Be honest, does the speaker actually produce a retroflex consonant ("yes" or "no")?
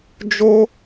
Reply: no